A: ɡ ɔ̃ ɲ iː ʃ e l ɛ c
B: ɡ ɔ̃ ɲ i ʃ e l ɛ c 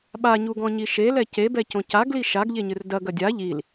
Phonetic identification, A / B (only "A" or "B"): B